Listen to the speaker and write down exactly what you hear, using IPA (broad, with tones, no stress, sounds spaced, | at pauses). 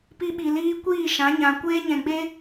p i˧ ɓ i˨ l iː˧ kʷ iː˦˨ ʃ ã˨˦ ɲ ã˨ kʷ eː˧ ɲ ɛ̃˨ ɡ͡b e˧